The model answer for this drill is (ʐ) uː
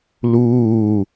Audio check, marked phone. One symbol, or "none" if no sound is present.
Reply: l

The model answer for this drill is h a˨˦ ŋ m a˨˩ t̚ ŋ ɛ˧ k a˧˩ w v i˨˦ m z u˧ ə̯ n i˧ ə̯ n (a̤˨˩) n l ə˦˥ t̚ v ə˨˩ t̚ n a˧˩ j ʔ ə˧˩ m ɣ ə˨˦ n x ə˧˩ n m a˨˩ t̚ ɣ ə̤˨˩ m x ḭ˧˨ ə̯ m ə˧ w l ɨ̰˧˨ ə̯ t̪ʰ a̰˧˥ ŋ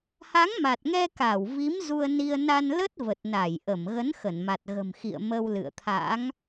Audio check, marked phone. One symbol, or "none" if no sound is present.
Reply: a˧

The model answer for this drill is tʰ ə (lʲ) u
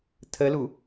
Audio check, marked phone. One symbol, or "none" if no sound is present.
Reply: l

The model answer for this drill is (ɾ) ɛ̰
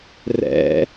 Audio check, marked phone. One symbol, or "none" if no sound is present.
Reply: r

